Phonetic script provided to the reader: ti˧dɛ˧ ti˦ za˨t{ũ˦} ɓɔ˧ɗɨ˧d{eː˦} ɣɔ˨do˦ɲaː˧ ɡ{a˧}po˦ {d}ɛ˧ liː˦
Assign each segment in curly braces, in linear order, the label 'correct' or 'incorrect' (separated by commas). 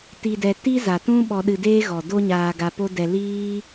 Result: correct, correct, correct, correct